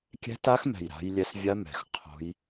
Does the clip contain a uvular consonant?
yes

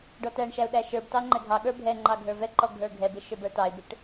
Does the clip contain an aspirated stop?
no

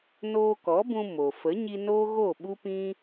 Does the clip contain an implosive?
yes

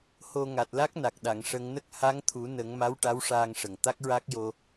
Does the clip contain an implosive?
yes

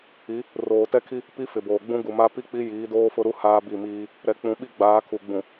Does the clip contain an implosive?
yes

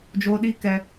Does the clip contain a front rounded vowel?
no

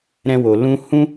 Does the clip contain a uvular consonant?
no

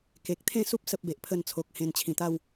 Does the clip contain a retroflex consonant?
no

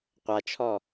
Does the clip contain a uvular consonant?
yes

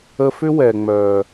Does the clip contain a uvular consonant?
no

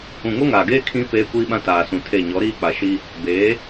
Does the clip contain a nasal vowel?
yes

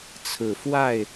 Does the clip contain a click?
no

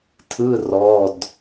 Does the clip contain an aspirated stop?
yes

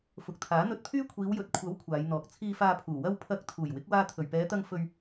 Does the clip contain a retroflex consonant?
no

